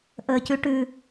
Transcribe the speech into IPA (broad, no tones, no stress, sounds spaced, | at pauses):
ʔ əː c ʉ ʈ ʉ